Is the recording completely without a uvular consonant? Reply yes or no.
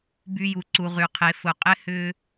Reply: no